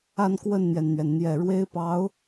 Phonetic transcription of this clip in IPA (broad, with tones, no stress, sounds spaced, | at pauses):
a˥˧ n k w ə˥˩ n n̪ j ɛ˩ n n̪ ɥ ɛ˩ n n̪ j ɛ˨˩ ɻ w e˥ ɪ̯ p ɑ˧˥ ʊ̯